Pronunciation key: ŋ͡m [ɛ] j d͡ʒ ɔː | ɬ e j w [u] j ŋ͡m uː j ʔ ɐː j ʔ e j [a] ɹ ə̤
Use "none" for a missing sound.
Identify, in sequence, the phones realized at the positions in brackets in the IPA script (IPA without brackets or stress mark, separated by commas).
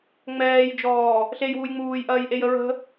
ɛː, u, ə